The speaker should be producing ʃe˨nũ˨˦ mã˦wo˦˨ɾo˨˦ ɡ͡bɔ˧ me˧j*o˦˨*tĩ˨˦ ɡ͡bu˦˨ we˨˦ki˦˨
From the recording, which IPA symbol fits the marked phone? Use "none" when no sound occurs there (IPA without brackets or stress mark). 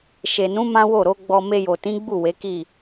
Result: o˨